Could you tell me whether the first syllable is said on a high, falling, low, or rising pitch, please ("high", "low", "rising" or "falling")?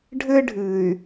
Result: high